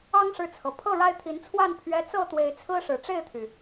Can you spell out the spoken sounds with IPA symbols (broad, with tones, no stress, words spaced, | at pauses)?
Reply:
ɑ˦ŋʂɻ̩˨t͡sʰɤ˩ pʰɤ˥˨ɻa˦ɪ̯t̪ʰi˨˦nt͡sʰwa˥˨n pʰɥɛ˦ t͡sɤ˥˨t̪we˨˦ɪ̯t͡sʰɹ̩˦ ʂɻ̩˨˩ʈ͡ʂe˥˨ɪ̯t̪ʰy˩